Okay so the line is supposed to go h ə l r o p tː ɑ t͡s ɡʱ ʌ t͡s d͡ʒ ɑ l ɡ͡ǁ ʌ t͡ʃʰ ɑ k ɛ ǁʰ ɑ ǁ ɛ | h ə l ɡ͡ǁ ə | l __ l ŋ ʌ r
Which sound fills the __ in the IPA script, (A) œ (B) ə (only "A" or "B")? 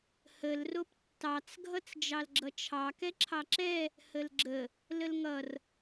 B